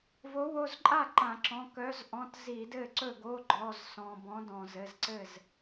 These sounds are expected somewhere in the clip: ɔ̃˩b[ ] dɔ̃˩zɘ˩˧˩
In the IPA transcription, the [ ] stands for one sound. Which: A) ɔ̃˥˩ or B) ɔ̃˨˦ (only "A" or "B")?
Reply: B